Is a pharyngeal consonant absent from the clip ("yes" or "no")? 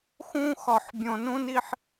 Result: no